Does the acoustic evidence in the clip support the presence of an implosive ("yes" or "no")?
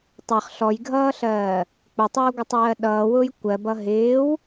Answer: yes